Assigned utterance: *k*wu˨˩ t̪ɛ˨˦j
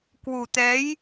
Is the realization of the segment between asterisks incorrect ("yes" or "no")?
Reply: no